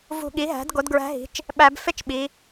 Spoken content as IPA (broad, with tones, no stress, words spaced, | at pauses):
vṳ˧˩ɠi˩˥ɦæ̤˩˥d ɡo˩˥dɡɹæ̤˧˥ɦi̤˩˥t͡ʃ | ɓæ˧˩˧bfe˥t͡ʃɓi˩˧